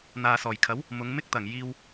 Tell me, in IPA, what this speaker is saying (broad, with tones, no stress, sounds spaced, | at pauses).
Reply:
n̪ aː˨ s ɔː˨˩ j kʰ ɐ˨˥ w | m ʊ˨˧ ŋ m ɪ˥ k̚ t̪ ɐ˨˩ ŋ j iː˧ w